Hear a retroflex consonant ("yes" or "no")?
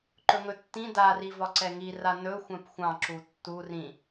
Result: no